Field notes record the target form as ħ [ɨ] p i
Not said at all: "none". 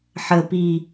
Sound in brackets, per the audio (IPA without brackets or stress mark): ə